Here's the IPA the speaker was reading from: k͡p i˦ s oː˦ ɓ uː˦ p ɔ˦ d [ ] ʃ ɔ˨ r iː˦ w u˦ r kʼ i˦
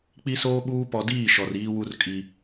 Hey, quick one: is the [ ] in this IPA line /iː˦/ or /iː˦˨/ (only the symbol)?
iː˦˨